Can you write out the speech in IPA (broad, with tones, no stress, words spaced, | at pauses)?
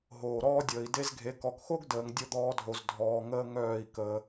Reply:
ɦoː˨ɾɔː˦dʲəː˨i̯ de˦zɡʱe˨˦ kɔ˨kxo˦ɡdəː˨ŋ dʲə˦˨d̪ɔː˧dʱo˨z dʱɔː˨ ŋəː˦ŋœː˦˨i̯kəː˧